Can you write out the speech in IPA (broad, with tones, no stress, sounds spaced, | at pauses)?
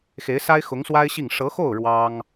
x e˧˥ ɪ̯ s a˥ ɪ̯ x ʊ˧˥ ŋ s w a˥ ɪ̯ ɕ i˥˩ ŋ ʂ ɤ˧˥ x o˥˩ ʊ̯ ɻ w ɑ˥ ŋ